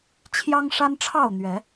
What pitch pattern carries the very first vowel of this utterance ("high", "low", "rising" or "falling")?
high